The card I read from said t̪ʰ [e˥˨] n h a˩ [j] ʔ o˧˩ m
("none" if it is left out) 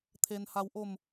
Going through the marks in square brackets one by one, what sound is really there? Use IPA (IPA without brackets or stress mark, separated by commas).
e˩, w